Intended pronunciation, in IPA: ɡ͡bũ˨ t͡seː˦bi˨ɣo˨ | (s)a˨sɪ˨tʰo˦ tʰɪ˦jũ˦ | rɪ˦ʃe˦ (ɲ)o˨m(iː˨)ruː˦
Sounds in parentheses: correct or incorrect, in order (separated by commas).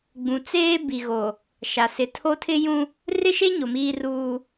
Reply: incorrect, correct, incorrect